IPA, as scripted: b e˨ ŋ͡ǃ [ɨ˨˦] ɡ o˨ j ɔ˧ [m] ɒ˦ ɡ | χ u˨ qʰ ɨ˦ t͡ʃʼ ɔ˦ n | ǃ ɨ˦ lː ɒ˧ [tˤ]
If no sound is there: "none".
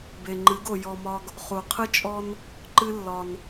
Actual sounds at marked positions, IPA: ɨ˨˦, m, n

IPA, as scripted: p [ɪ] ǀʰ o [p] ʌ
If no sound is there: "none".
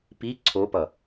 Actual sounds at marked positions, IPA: i, p

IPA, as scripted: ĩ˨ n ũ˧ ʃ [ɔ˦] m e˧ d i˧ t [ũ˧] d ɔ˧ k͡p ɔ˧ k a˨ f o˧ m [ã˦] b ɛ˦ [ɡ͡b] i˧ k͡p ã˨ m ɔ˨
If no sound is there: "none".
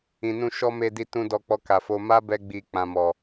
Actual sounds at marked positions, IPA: ɔ˦, ũ˧, a˦, ɡ͡b

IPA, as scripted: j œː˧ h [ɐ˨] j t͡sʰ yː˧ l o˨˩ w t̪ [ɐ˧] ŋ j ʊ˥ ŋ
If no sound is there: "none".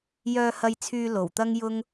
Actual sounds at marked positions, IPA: ɐ˧, ɐ˥

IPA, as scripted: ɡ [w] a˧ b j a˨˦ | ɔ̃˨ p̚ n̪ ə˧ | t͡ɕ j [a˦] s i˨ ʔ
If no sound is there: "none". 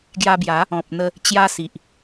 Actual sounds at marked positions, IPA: j, a˧

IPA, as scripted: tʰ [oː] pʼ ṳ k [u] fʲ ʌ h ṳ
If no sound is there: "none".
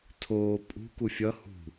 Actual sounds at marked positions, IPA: oː, u

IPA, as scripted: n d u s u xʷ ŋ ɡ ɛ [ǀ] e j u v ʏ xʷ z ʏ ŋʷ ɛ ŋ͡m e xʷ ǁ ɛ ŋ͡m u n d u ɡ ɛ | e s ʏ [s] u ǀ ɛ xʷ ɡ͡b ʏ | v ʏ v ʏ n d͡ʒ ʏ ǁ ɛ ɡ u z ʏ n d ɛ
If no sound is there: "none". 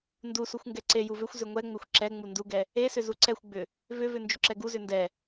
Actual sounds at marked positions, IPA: ǀ, z

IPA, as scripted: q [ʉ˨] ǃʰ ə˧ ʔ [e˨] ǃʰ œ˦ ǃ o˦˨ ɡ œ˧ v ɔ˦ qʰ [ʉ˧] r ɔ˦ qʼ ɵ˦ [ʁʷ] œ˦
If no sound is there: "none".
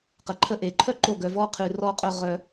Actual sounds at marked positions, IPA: ə˨, e˨, ʉ˧, ʁ

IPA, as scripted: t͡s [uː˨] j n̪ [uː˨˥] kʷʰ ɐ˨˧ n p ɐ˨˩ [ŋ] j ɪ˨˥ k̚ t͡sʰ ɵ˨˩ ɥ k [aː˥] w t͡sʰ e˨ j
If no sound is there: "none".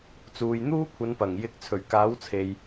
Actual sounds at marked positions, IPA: uː˨, uː˥, ŋ, aː˨˥

